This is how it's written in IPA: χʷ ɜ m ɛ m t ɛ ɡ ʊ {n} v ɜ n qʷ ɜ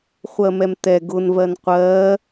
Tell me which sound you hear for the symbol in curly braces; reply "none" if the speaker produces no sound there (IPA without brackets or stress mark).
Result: n